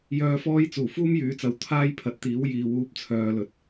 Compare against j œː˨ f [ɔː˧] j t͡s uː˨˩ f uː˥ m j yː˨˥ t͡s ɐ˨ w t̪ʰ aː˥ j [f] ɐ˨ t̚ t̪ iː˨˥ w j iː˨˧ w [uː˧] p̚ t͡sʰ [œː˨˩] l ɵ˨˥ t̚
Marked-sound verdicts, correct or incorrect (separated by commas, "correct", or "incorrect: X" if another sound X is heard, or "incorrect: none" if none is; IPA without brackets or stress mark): correct, incorrect: pʰ, correct, incorrect: œː˨